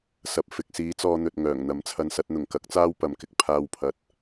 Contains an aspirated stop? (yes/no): yes